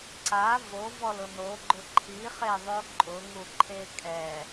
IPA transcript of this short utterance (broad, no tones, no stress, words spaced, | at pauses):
ǀa vovɔlʊ noɡ͡ǃʊ ǃʰiχeðˤo ǃʼʊŋuǃʰe kʼɛ